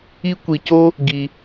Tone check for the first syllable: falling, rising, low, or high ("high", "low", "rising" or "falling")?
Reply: high